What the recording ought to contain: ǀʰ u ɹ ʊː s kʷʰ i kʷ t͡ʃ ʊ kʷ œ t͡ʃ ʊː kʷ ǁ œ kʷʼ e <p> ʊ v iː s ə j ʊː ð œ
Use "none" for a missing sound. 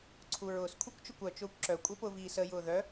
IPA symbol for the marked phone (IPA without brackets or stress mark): p